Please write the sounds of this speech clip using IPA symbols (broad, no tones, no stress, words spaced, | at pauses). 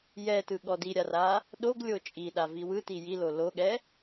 jɛtɯ ɠɔdiɾʲara | ɗoɡlʲo t͡ʃʼiɗa viwɯti jilo loɠɛ